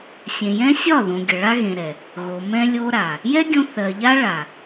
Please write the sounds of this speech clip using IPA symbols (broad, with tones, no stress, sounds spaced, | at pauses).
sʲ ẽ˨ j ɛ̃˦ sʲ ɒ˦˨ ð õ˨ ɡʲ ə˨ ɭ a˦ ɣ ẽ˨ ɾ ɛ˨ | ɣ o˨ m ɛ̃˧ lʲ o˦ ɾ a˨ | j ɛ˦ ɡʲ õ˧ θ ɜ˨ ʎ a˦ ɭ a˨